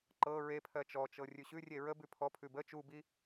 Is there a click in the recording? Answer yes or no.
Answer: yes